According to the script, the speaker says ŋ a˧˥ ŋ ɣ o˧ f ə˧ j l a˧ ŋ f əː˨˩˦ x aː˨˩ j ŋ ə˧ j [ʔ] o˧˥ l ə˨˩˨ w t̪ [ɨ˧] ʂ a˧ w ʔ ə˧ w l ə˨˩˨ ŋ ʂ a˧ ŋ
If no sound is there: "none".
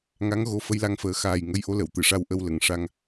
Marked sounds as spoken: ʔ, ɨ˨˩˨

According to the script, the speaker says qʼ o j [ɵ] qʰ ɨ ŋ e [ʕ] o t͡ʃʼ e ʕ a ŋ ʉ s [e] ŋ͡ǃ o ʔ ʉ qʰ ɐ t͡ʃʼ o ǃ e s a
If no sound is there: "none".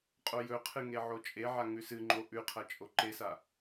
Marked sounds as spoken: ɵ, ʕ, ɨ

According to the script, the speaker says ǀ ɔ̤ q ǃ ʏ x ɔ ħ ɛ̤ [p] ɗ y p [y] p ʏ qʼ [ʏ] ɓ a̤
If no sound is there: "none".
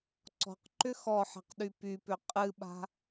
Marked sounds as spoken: q, y, ɨ

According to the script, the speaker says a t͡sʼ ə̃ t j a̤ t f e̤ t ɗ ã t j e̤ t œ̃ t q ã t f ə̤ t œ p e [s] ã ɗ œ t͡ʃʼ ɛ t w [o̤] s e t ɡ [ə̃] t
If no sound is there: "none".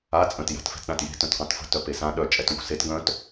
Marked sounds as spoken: s, o̤, œ̃

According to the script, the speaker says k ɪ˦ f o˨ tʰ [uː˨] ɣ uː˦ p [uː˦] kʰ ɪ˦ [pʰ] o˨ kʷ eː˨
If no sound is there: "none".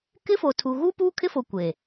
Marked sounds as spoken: u˨, uː˦, f

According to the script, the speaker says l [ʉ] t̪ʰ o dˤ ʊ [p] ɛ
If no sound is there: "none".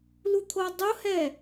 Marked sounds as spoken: u, h

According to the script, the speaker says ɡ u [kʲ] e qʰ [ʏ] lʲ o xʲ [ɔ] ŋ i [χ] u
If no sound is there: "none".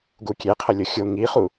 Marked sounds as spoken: kʲ, ə, o, χ

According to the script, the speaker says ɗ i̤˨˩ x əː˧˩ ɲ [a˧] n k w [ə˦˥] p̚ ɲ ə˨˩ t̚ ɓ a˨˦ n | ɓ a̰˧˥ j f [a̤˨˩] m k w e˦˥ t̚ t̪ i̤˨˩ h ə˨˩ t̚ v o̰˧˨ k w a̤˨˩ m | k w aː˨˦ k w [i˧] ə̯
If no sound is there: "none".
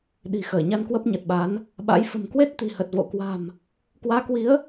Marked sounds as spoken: a˧, ə˦˥, ə̤˨˩, i˨˦

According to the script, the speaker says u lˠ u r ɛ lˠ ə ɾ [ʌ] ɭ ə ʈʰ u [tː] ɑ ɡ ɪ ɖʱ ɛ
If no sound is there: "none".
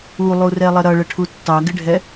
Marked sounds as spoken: ʌ, tː

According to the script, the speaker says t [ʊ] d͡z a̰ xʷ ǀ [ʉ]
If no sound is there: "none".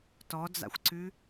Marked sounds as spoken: ɔ, ʉ

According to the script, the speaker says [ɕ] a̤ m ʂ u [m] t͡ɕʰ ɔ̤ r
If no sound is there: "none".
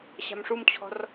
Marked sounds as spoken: ɕ, m

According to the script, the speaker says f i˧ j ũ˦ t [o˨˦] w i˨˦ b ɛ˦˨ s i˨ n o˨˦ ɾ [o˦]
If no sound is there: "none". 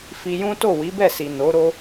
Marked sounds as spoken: o˦˨, o˦

